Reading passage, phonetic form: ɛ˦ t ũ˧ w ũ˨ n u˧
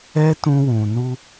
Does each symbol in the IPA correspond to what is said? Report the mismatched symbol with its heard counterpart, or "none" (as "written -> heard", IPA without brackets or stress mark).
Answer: none